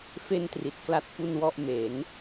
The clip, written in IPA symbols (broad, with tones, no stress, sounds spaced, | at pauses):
f e˥˩ n t r i˨˩ t̚ k l a˥˩ t̚ f u˥˩ n w ɔ˥˩ ʔ m e˩˦ n